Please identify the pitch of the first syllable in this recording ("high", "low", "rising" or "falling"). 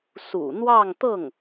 low